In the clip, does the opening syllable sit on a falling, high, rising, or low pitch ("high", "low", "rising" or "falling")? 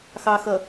low